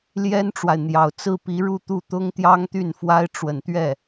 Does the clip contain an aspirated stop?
no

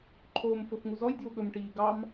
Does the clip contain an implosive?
yes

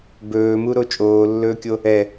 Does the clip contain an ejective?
yes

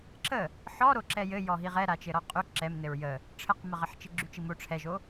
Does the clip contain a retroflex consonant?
yes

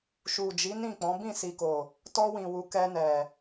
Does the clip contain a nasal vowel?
yes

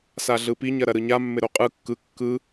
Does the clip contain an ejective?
yes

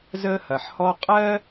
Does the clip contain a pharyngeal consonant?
yes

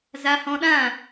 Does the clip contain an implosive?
yes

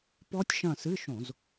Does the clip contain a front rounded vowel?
no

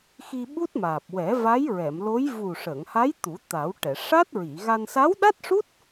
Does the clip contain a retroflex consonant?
yes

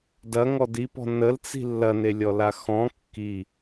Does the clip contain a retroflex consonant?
no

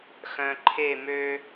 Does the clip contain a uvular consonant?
no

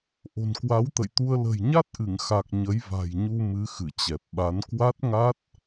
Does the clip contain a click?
no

